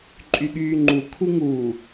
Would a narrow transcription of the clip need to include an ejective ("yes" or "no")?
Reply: yes